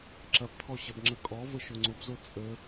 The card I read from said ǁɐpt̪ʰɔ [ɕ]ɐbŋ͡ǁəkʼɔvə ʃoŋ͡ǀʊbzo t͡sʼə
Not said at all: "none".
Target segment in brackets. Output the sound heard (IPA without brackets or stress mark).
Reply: ɕ